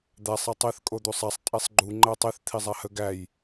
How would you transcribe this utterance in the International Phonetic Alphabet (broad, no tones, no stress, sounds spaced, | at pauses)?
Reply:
d̪ æ sˤ e tˤ e θ kʼ o d̪ u sˤ æ sˤ tʼ e sˤ ɡ͡ǃ u ŋ͡ǃ æ tˤ e θ t̪ʰ i zˤ a h ə ɡ æ j